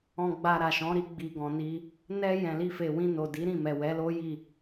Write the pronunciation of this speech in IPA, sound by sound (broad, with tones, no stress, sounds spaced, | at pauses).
ɔ̃˨ ɡ͡b a˨ ɾ a˨ ʃ ɔ̃˨˦ ɾ i˧ ɡ͡b i˨ ɡ ɔ̃˨ n i˧ | n ɛ˧ j ɛ̃˨ l i˧ f e˨ w ĩ˧ n o˨ d i˨˦ ɾ ĩ˦˨ m ɛ˨ w ɛ˨˦ l o˦ j i˦˨